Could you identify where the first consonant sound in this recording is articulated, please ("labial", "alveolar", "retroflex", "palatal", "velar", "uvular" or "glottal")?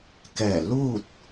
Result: velar